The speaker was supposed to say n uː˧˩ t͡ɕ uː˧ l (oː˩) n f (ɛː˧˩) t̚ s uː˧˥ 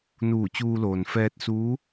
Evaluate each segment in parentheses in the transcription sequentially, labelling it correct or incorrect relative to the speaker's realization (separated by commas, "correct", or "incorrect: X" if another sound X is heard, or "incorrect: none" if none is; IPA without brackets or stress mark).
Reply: correct, incorrect: ɛː˧